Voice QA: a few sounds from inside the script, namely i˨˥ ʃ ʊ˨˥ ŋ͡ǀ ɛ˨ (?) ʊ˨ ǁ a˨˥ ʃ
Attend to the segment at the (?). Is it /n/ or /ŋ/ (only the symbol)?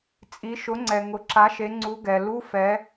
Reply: ŋ